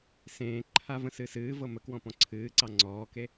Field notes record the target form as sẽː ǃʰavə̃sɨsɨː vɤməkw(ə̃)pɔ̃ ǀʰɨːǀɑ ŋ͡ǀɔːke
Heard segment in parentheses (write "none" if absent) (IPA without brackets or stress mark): ɔ̃